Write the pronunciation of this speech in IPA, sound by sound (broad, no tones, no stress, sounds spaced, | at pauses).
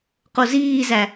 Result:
q o z iː z æ